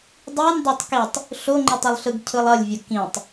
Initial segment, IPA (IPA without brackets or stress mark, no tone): dˤ